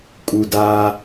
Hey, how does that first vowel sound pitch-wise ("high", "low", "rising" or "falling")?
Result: low